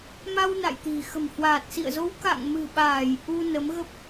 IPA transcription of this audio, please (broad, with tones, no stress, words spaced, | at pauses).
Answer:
ma˧wna̰˧˨jt̪i̤˨˩ xə̤˨˩mhwaː˨˩t̚sḭ˧˨ə̯zo˨˦w ka̰˧˨ŋmɨ̤˨˩ɓaː˧˩j ʔu˧ nə˨˦mɣə˦˥p̚